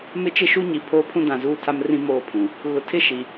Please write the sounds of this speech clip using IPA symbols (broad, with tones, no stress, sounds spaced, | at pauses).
m ɪ˦ t͡ʃ ɪ˦ ʃ u˦ ɲ i˨ pʰ oː˦ pʰ ũ˦ d ã˨ z uː˦˨ tʰ a˦ m r ĩ˦ m oː˦ pʰ ũ˨ | ɣ ʊ˨ tʰ ɪ˦ ʃ i˨